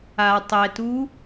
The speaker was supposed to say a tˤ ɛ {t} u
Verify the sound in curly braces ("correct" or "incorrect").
correct